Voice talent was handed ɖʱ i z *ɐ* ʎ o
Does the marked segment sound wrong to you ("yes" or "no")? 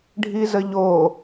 yes